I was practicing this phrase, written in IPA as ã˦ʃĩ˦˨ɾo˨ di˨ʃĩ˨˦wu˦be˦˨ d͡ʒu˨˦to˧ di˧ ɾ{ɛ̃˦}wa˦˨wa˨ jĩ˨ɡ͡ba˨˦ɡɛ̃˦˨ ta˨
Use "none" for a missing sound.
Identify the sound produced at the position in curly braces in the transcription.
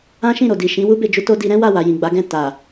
ɛ̃˦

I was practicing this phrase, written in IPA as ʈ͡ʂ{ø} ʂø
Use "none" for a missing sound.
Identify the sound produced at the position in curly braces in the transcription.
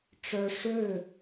œ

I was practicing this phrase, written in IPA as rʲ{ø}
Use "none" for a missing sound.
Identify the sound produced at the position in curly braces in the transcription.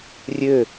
ø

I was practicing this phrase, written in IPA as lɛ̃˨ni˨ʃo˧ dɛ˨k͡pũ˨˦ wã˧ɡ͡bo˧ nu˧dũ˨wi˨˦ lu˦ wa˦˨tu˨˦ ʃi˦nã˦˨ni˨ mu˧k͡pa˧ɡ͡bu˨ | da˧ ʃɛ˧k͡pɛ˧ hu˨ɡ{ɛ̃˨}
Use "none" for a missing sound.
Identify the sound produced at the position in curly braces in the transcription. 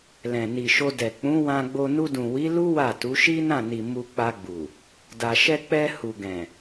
ɛ̃˨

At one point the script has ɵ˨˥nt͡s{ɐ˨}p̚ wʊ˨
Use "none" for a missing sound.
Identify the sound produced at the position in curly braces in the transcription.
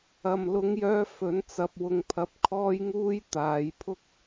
ɐ˨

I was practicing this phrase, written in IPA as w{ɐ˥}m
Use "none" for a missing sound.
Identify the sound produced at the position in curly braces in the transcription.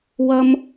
ɐ˥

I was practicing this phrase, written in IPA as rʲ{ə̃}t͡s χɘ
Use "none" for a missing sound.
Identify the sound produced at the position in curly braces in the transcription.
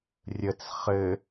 ə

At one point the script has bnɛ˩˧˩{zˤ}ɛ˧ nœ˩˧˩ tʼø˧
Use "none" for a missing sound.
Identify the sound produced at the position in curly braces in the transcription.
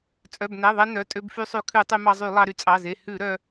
ðˤ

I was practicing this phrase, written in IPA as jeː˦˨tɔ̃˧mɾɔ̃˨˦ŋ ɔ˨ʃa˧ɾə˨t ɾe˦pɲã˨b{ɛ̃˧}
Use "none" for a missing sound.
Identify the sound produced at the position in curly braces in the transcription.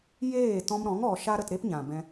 ɛ̃˧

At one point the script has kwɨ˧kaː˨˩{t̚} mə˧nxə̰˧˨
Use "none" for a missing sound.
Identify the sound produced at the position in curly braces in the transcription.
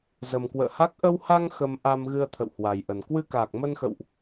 k̚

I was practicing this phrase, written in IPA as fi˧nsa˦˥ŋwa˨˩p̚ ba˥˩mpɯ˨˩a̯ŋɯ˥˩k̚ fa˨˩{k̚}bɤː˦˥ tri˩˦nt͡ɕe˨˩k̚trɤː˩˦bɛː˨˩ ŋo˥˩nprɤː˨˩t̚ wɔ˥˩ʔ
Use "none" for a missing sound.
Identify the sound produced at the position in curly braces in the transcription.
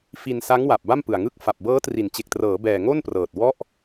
p̚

